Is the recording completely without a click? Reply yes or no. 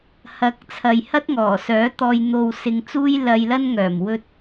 yes